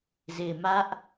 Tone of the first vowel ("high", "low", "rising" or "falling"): low